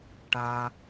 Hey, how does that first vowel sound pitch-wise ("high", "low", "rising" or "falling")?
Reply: high